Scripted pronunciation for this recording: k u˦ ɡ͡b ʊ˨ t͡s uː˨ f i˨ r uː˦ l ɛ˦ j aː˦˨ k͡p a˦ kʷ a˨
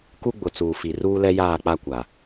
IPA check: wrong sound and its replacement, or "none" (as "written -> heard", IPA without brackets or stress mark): none